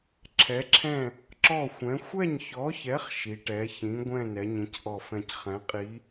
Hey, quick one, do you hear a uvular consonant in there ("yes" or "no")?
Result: yes